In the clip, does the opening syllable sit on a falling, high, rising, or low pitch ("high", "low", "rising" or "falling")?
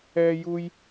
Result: high